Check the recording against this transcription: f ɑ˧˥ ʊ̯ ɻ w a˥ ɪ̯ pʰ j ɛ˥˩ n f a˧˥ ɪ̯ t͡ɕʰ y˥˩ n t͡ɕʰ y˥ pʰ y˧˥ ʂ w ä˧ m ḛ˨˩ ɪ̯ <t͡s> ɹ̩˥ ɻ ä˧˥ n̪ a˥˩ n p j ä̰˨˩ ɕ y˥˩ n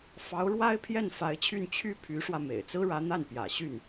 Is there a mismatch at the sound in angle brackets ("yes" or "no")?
no